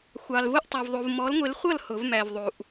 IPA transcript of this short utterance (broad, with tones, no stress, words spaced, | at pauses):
xʷɑ˨lvʊ˥˩ʔtˤʌ˨v ðˤu˨vmɔ˨˥l ŋʷɪ˨˥lχʷʌ˥˩l hʊ˨˩˦vmæ˨vðˤu˨ʔ